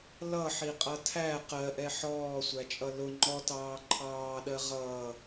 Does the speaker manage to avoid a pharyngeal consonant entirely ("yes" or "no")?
no